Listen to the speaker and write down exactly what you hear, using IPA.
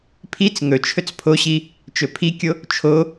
pʰit͡s ŋɵ t͡ʃʰɵt͡spʰoɕi | t͡ʃɵpʰikʲo | t͡ʃʰo

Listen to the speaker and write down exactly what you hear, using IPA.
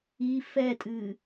i fɛtʼɨː

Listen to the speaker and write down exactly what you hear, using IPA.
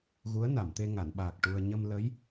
ɣu˧˥ə̯na˨˩˨mt̪e˧ ŋa˨˩˨nɓaː˨˩k̚ ʈu˧ə̯ ɲə˧m lə˧˥j

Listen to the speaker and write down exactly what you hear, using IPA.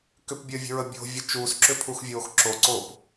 kʏpbʲəːvʲə̤ɹə bʲo̤vʲə t͡ʃuːsǁʏpʰuxvʲoːx ǁoǀoːp

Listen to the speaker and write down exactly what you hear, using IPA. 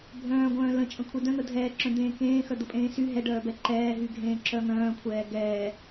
bʱœ̃ːɡʷœ̃ː lə̃t͡ʃʼə̃kʷʰe dœ̃n̪ə dʱɛːǁœ̃d̪ẽː kẽːxœd̪əpʼẽː sy ɦɛɖœːbɛ ǃɛːɦyɡʱẽːǁœ ŋœ̃ːkʷʰɛː ɡɛː

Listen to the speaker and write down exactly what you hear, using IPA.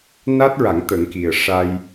na˦˥t̚ɹa˨˩˦ŋ t̪ə˨˩˦ŋki˨˩ə̯ ʂa˧j

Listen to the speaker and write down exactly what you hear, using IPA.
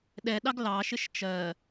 ɗɛɗɑɡ lɑʃɪʃ t͡ʃɜ

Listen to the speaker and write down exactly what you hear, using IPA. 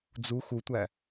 d͡zu xutʷæ

